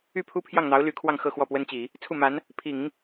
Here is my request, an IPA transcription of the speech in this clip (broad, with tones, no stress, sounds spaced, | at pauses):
y˥˩ pʰ u˥ pʰ j ɑ˥˩ ŋ n̪ ɑ˧˥ ʊ̯ l y˧˥ kʰ w ɑ˥˧ ŋ x ɤ˥˧ x w ɔ˥˩ p w ə˥ n t͡ɕ i˨˩˦ | t͡sʰ u˥˩ m a˧˥ n | pʰ i˨˩˦ ŋ